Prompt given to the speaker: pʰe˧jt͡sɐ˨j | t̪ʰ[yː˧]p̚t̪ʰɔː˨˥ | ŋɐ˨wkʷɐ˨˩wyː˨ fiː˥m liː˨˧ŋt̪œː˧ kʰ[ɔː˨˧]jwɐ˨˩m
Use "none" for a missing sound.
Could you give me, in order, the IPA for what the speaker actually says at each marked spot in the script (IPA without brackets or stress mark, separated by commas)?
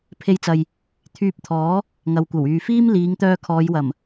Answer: yː˧, ɔː˨˧